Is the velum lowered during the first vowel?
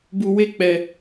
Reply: no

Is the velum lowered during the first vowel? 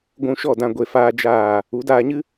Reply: yes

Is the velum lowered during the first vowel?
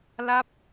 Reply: no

